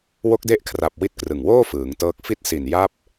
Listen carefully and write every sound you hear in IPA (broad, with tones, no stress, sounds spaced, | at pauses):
w o˦˥ k̚ d e˦˥ ʔ kʰ r a˨˩ p̚ w i˦˥ t̚ k r ɯ˨˩ ŋ w oː˥˩ f ɯː˩˦ ŋ t ɤː˦˥ k̚ f i˦˥ t̚ s i˨˩ n j a˦˥ p̚